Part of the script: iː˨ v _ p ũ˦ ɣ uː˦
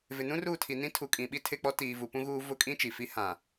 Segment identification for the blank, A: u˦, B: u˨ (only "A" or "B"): B